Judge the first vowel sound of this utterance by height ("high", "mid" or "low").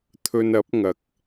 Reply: mid